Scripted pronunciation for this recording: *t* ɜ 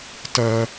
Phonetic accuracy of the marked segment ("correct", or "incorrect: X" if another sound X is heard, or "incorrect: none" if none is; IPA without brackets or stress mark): correct